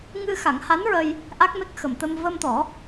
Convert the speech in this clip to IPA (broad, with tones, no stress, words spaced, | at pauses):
ŋɨ˧xa˨˩˦ŋha˧˥nɹə˧j | ʔa˦˥k̚me˦˥k̚ xə˨˩mt̪ə˧m və˧mt̪ɔ˨˩˦